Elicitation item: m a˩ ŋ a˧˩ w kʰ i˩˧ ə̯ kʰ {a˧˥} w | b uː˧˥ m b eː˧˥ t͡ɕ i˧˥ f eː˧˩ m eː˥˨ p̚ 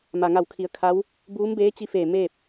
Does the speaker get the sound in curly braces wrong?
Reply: no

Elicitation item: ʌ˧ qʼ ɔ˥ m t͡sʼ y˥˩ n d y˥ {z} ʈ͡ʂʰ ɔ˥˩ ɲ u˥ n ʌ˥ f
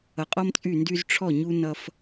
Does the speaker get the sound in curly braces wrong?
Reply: no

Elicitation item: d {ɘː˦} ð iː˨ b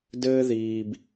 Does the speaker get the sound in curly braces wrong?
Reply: no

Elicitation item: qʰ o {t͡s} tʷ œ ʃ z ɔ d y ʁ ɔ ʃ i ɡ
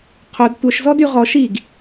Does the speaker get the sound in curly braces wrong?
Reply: yes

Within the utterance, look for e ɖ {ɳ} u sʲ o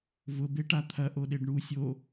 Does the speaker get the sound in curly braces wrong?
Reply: no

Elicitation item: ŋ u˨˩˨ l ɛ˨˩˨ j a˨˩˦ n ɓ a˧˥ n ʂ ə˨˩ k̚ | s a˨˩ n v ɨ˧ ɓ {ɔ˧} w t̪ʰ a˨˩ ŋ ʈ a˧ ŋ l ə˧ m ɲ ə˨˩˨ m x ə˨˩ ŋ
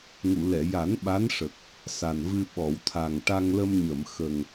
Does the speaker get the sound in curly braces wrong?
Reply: yes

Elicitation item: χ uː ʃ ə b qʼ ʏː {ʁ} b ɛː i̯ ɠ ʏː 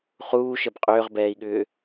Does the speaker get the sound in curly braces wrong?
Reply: no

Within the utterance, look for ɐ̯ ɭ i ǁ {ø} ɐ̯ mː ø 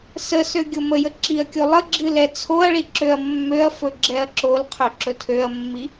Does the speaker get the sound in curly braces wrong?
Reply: no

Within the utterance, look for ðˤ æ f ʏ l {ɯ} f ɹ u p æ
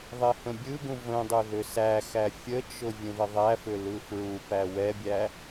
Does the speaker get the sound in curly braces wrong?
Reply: no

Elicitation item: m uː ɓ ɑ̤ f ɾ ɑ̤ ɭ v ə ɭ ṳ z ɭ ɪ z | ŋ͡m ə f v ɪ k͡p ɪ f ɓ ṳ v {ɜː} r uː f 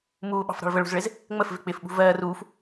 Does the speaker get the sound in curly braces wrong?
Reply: no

